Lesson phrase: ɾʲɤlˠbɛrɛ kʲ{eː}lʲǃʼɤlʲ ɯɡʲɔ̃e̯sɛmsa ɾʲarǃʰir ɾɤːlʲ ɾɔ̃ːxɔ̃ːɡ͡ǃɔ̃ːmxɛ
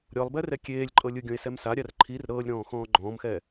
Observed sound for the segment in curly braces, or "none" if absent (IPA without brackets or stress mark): eː